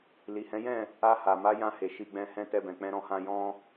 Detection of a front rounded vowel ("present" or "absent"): absent